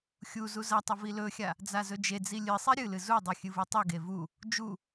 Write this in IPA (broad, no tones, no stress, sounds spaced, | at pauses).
xʲ u z u z ɐ tˤ ɵ v i l ɵ xʲ a | d͡z a z ɵ d͡ʒ e d͡z i lʲ ɨ sˤ i ɾʲ ɨ l ɨ z u dˤ ɨ xʲ ɨ v u tˤ u ɡ e v u | d͡ʒ u